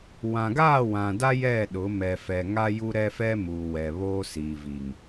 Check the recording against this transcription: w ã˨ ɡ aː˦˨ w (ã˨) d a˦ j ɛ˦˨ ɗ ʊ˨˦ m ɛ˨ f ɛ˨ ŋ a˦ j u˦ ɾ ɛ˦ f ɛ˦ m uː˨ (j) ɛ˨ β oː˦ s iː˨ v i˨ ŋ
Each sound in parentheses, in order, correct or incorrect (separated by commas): correct, incorrect